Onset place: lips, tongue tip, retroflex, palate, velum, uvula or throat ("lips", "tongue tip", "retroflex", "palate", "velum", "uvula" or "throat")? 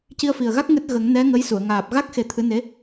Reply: palate